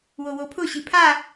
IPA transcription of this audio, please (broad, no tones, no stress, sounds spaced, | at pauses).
w o w o pʰ ʊ ɕ i pʰ a